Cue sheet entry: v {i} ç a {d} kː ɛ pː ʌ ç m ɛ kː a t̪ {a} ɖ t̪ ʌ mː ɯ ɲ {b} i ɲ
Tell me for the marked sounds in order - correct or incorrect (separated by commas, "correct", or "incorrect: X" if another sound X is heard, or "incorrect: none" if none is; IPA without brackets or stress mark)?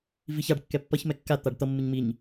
correct, incorrect: ɖ, correct, incorrect: m